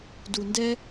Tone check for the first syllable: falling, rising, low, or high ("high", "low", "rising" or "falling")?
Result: low